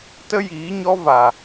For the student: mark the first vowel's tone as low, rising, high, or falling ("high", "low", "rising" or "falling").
high